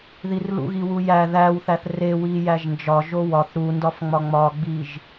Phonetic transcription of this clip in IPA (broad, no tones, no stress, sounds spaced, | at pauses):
ð i r l ṵ ɣ i w u j æ ð æ w θ æ θ r e w i j æ ʒ n d͡ʒ ɒ ʒ o w ɒ θ ɾ u n d ɒ f ŋ͡m ɒ ŋ͡m ɒ ɡ͡b i ʒ